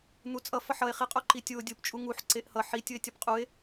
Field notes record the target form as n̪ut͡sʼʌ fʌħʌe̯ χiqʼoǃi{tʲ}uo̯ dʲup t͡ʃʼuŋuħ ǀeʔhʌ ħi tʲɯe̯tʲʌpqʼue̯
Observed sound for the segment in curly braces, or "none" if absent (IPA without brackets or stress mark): tʲ